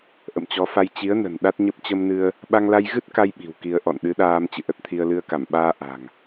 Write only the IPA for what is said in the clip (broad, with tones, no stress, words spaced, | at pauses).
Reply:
ʔə̰˧˨mt͡ɕɔ˨˦fa˧j t͡ɕi˨˦ə̯nə̤˨˩n ɗa˦˥t̚ɲə˦˥p̚ t͡ɕə˧mnɨ˧ə̯ | ɓa˧ŋla˧jɣɨ˦˥t̚ka˧j ɓi̤˨˩wki˧ə̯ ʔɔ̰˧˨nɗɨ˨˦ɗaː˧m t͡ɕɨ̰˧˨ʔə˦˥t̚t̪ʰi˧ə̯ lɨ˧ə̯ka˧˩m ɓaː˧ ʔa̤˨˩ŋ